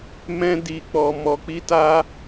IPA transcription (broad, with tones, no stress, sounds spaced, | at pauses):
m ɛ̃˦ d i˧ k͡p ɔ˧ m ɔ˧ k͡p i˦ t a˦